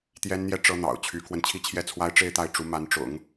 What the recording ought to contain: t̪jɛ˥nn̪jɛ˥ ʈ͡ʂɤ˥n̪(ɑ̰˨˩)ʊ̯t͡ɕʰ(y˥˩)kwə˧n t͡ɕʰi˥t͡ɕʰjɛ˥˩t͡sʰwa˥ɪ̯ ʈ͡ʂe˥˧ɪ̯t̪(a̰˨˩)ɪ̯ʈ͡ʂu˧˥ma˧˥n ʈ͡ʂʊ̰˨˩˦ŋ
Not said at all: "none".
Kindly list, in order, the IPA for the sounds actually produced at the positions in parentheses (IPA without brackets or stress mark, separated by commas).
ɑ̰˨˩, y˧˥, a˥˩